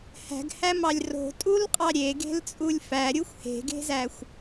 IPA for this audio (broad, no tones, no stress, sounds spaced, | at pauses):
h æ̤ ɡ h æ m ɑ lʲ r o̤ tʼ u l qʼ ɑ ɾʲ e ɡ e̤ l t͡sʼ u lʲ f æ ɾʲ u xʷ h e̤ ɡ e̤ z æ xʷ